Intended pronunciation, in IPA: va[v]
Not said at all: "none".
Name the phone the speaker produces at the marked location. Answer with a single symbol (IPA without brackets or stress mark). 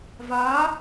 none